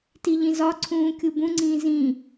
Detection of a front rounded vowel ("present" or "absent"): absent